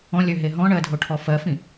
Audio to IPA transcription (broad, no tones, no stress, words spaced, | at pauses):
ɔ̃lʲøɦe ɦɔ̃ɳɜdʱoʈʰɔ fɜfĩ